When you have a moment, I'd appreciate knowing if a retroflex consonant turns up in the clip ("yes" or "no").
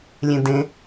no